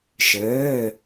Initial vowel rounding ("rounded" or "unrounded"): unrounded